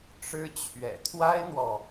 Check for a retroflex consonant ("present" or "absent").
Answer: present